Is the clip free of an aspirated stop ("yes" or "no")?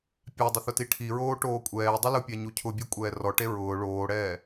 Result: no